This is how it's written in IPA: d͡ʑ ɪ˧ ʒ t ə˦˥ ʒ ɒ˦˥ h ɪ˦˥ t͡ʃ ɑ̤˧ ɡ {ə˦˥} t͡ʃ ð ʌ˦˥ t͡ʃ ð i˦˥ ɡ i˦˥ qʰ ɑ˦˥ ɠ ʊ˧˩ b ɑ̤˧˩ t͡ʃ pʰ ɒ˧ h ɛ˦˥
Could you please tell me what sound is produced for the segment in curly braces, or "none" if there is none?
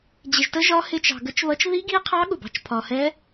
ə˦˥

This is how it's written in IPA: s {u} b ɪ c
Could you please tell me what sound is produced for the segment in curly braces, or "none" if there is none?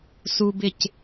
u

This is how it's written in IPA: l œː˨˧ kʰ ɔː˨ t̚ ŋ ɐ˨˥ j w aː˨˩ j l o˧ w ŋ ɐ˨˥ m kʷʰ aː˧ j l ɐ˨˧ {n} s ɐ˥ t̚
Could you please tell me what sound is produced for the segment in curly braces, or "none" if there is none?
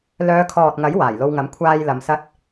m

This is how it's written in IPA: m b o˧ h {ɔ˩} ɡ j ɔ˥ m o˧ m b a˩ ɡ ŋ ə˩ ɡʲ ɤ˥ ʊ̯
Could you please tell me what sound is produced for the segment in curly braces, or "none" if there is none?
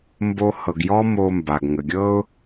ɤ˩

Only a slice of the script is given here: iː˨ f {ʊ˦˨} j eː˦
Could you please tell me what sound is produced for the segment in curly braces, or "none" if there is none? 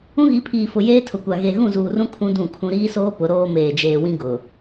ʊ˨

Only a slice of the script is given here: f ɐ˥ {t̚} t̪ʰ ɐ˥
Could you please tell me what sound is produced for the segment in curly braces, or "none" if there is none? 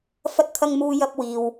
t̚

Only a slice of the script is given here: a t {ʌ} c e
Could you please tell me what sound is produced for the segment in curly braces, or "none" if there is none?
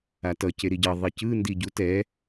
ʌ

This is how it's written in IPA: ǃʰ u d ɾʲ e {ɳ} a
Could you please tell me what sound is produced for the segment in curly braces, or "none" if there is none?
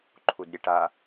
ʈ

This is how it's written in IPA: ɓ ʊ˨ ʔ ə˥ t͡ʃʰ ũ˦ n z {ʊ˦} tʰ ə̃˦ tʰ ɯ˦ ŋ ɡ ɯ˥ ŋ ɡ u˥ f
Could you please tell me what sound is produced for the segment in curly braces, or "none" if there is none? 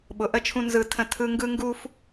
ɯ˦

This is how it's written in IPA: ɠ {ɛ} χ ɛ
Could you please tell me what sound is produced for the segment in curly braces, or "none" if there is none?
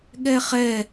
ɛ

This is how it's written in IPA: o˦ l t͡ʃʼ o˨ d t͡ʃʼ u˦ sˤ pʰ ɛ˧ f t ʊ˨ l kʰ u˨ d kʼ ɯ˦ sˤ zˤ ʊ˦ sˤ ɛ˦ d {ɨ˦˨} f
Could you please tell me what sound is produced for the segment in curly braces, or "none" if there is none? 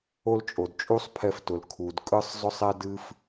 ɨ˦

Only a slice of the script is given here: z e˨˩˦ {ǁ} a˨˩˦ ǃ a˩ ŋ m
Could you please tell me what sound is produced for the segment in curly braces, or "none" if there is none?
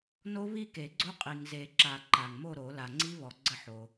ǁ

